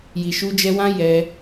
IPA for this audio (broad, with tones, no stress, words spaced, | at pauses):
ji˨ʃu˧d͡ʒɛ˧wã˦ jɛ˧